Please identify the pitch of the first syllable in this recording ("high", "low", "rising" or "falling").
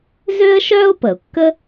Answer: high